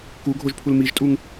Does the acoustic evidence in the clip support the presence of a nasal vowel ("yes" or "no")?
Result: no